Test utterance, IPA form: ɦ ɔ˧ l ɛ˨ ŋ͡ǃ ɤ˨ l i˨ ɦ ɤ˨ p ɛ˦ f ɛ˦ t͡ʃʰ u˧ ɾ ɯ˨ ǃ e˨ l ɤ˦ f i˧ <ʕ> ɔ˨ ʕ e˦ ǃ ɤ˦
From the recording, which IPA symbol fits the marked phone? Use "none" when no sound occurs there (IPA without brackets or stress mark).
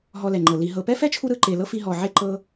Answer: ɦ